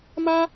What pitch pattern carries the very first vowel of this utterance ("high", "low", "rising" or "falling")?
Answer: high